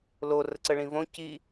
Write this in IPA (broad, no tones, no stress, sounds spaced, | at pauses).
l o r ə ǀ ə ɭ ĩ v õ c i